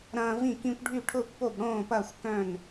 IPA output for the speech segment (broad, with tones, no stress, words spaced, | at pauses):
ɾɐ̃ː˦vĩ˥˨kĩ˦kʷɖʱy˥˨ ʈʰʊː˥˨kʷpo˥˨bɽõː˥˨pɐː˥˨xʷ kœ̃˥˨n